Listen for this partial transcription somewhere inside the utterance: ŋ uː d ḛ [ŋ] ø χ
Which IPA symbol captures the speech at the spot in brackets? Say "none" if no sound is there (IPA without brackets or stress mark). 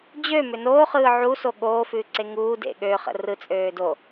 ɠ